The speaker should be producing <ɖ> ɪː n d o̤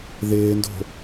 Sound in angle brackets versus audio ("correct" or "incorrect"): incorrect